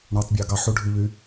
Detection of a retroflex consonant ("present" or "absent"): present